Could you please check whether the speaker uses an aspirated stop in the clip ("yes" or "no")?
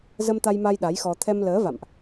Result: yes